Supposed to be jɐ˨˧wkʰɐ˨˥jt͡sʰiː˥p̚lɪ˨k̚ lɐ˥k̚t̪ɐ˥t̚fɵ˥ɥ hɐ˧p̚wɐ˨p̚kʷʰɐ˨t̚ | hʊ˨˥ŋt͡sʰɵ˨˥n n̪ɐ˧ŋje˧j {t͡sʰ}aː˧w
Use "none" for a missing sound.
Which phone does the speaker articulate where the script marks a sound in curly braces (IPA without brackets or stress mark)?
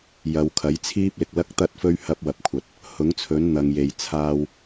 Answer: t͡sʰ